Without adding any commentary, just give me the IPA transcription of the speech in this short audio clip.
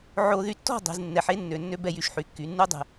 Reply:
ʕ o˧ ð y˧ tː ɔ̤˥˧ dˤ e̤˩˧ z nː ɛ˩˧ ħ e˥ nː ø˧˩ nː ø˥ b ɛ˥˧ j y˧ ʃ ħ y˩˧ kː y˩˧ nː u˥ dˤ ɛ̤˧˩

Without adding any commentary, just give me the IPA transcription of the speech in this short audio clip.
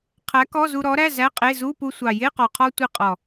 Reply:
qʰ æ˨˥ k ɔ˧˥˧ z u˧ ɾ ɔ˨˥ ɾ æ˧˥˧ z æ˧˥˧ qʼ e˧˥˧ z u˧˥˧ p u˧ sʷ ɑ˨˩ j e˧˥˧ q ɔ˨˩ qʰ ɔ˧ tʷ i˧ qʼ ɔ˨˩

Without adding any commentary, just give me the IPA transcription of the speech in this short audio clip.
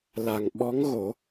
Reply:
l a˨˩ ŋ ɓ ɔ˧˥ ŋ ɣ o˨˩˦

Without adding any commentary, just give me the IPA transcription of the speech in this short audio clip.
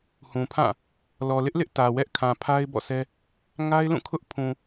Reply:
h ũ˨ pʰ ã˦˨ | l ɔ˨ l ɪ˦ ʔ l ɪ˦ ʔ t ä˨ w ɛ˦ ʔ kʰ ã˨ pʰ a˦ ɪ̯ b ɔ̰˦˨ s ɛ˦ | ŋ a˦ ɪ̯ l ũ˦˨ kʰ ʊ˦ ʔ pʰ ũ˨

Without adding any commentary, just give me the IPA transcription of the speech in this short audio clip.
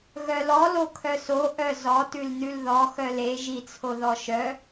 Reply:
ɣ œ l ɔ l o kʰ œ s o ʔ œ z ɔ t ʉ l n ʉ l ð ɔ x œ l e ʒ i t͡sʰ o ð ɔ ʃ œ

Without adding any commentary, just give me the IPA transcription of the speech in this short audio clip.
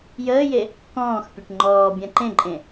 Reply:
j əː j e | k ɔ̃ː x pʲ e ʈ ŋ͡ǃ ɔː bʲ ã ǃ ẽ ǃʼ ẽ

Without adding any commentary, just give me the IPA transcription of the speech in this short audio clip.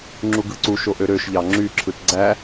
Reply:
ŋ͡ǁ u ɡ ɯ ǀ u ʃ o ʔ ø ɾ ø ʃ ʎ ɑ ŋ͡ǁ y ǁʰ ɯ t ɡ͡ǀ æ

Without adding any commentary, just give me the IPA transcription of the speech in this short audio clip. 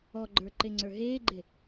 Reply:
ɔ ɡ͡ǃ ə˞ ǃ e ŋ͡ǀ ə˞ ɦ eː ɡ͡ǃ e

